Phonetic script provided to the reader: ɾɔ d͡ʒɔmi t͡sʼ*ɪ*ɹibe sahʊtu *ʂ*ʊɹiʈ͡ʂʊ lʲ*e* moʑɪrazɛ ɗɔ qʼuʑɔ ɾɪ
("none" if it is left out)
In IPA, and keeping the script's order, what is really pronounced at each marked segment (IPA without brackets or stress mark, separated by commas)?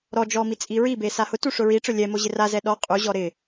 i, ʂ, ɛ